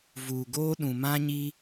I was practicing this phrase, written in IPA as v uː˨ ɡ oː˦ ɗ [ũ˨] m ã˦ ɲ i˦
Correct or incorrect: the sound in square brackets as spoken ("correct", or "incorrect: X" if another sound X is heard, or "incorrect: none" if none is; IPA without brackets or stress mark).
correct